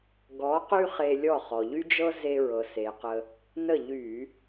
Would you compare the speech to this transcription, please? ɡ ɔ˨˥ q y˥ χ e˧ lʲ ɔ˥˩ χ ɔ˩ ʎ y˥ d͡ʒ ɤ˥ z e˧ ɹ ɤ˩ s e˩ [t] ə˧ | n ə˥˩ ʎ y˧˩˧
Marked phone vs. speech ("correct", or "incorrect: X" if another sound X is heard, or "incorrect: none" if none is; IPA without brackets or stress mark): incorrect: q